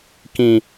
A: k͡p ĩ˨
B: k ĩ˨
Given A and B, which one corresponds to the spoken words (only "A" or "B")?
B